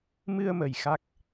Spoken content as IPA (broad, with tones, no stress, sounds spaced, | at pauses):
m ɨ˧ ə̯ m ə˨˩ j x a˦˥ k̚